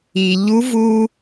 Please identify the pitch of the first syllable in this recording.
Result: low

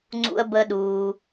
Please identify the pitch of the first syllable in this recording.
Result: low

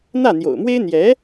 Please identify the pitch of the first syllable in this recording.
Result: falling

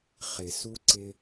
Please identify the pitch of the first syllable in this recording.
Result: low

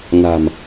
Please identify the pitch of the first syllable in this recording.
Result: low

